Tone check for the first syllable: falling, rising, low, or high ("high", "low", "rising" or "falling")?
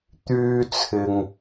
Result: high